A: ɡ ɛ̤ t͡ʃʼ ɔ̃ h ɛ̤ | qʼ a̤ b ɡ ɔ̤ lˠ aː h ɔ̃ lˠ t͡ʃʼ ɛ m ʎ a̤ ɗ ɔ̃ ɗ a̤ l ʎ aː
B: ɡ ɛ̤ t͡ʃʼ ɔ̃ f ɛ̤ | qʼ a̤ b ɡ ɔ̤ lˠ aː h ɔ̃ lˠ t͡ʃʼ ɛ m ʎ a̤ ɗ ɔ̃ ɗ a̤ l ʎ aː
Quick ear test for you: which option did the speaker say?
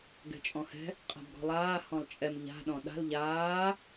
A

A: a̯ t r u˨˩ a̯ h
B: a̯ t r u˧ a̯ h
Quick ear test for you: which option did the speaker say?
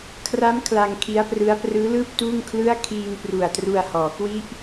B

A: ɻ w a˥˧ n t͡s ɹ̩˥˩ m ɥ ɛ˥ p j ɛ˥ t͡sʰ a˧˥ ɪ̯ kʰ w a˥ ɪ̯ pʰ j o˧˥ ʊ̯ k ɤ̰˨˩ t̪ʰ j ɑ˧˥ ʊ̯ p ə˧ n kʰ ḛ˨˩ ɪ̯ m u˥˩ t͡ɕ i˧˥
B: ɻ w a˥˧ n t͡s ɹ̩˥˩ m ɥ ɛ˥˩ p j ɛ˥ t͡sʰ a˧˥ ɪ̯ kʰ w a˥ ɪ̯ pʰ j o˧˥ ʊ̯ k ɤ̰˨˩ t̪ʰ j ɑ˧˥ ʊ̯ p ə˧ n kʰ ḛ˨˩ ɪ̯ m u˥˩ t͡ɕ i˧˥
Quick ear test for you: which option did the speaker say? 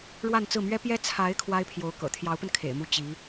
A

